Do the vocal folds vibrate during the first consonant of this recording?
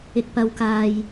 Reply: no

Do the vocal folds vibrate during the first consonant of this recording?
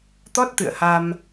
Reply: no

